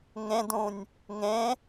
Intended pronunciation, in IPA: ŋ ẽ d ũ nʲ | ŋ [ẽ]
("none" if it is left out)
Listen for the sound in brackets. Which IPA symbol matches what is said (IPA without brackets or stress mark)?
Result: ẽ